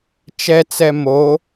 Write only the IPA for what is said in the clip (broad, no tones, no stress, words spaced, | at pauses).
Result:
t͡ʃɛt͡sɛ mo